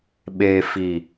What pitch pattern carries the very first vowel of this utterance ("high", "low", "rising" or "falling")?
low